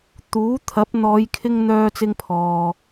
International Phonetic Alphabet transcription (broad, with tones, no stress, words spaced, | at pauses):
t̪uː˨˥ t̪ʰɐ˨˥p̚n̪ɔː˨˧jkʰɪ˧ŋ n̪œː˧t͡sɪ˧ŋpʰɔː˨